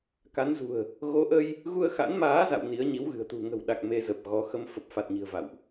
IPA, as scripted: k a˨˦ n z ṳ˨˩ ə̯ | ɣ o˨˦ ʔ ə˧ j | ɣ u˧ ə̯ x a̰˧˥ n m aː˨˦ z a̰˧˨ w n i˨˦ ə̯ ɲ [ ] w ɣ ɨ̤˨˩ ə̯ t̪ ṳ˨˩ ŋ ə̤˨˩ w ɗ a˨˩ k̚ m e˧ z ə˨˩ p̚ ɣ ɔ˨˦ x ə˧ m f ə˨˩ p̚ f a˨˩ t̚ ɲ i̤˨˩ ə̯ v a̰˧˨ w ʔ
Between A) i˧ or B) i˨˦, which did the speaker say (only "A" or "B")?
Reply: B